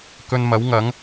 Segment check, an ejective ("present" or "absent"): absent